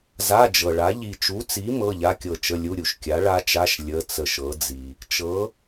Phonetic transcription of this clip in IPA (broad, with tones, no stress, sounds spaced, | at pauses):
z a˧˥˧ d͡ʒ ɤ˨ ɭ a˨˥ ʎ i˨ t͡ʃ u˨˥ t͡s i˨˥ m ɤ˧˥˧ ʎ a˧˥˧ kʲ ɤ˦˨ t͡ʃ ə˧˥˧ lʲ u˧˥˧ ɾʲ u˨ ʃ kʲ a˨˥ ɭ a˦˥ t͡ʃ a˧˥˧ ʃ lʲ ə˧˥˧ t͡s ə˦˨ ʃ ɤ˨˥ d͡z i˨ | t͡ʃ ɤ˨˥